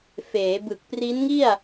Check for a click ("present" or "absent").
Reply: absent